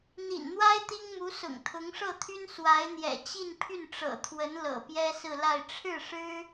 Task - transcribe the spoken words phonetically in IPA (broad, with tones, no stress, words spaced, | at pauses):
n̪ḭ˨˩nn̪wa˥ɪ̯ t̪i˥ŋmu˧˥sʊ̰˨˩ŋ t̪ʰʊ˧˥ŋʂɤ˥˩t̪ʰy˥n swa˧˥ɪ̯n̪jɛ̰˨˩t͡ɕi˥˧n pʰy˥˩n ʈ͡ʂɤ̰˨˩t̪ʰwə˧˥n lɤ̰˨˩pjɛ˥sɹ̩˥˧ la˥˧ɪ̯ ʈ͡ʂʰɻ̩˥˩ ʂɻ̩˥